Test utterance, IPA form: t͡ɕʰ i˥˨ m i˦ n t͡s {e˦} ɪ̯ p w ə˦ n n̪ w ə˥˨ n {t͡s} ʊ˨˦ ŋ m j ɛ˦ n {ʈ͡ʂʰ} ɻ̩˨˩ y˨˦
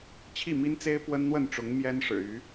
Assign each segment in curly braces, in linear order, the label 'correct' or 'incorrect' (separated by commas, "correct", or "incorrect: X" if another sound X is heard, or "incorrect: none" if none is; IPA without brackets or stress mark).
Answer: correct, incorrect: ʈ͡ʂ, incorrect: ʂ